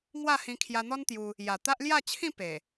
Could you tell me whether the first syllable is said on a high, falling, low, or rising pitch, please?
falling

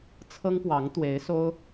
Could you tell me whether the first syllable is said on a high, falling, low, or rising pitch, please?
high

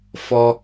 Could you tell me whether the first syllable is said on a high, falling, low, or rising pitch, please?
high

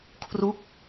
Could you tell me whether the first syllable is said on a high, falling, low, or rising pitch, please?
falling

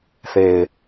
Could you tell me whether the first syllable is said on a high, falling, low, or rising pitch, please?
low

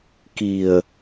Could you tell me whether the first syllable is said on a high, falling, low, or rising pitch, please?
low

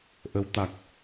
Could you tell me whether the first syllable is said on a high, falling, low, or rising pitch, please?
rising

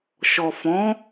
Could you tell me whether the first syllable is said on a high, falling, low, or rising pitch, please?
low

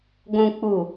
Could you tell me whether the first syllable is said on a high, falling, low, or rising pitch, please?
low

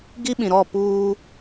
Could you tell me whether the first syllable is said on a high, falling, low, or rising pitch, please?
high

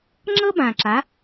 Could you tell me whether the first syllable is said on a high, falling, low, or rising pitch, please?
high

